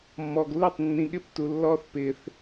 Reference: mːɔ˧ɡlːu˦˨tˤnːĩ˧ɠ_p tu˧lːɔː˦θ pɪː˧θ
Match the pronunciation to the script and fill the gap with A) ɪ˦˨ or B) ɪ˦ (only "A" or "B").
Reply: A